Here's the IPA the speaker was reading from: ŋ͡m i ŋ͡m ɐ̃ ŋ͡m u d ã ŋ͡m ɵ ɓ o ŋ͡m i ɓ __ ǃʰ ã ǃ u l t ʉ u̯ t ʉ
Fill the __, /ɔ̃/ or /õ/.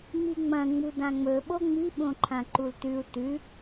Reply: õ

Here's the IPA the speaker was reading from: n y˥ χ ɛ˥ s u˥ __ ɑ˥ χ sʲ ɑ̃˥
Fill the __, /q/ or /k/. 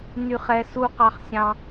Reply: q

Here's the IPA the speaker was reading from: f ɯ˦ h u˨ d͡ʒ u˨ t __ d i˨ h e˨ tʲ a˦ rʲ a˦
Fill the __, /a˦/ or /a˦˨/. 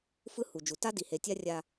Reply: a˦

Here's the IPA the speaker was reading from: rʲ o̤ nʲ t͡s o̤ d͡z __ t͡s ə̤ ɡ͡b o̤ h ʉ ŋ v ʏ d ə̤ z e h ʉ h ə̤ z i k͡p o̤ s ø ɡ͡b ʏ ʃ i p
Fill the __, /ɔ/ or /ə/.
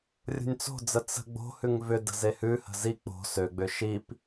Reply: ə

